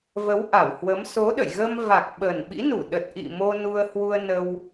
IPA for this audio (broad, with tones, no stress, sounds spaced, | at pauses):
v ə˨˦ w ʔ a˧˩ w h w ə˨˦ m s o˨˦ ɗ ə̰˧˨ j ɣ ə˧ m v a˨˩ k̚ ɓ ə˨˩ n ɓ ḭ˧˥ n u˧˩ ɗ ə˨˩ t̚ ʔ ḭ˧˨ m o˧ n u˧ ə̯ h w u˧ ə̯ n ə˧ w